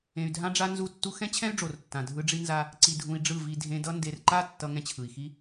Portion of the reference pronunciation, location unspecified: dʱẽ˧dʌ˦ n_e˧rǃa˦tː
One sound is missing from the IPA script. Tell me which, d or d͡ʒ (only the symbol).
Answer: d